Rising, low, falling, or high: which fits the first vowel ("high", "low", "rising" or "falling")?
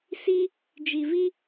high